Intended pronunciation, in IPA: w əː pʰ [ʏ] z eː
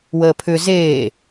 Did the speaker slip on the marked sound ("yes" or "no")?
no